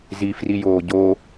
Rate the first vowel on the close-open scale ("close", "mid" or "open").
close